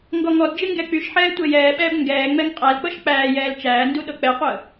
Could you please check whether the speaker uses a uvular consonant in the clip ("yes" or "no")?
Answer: yes